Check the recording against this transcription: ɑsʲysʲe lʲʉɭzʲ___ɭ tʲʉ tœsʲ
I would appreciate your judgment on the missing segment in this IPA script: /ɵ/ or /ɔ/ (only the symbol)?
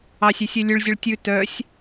ɵ